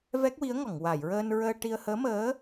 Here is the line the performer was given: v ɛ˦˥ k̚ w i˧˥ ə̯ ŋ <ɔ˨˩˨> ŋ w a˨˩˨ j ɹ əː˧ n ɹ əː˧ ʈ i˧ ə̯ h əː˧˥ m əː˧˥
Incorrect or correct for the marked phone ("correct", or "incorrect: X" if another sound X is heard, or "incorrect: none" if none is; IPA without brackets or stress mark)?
correct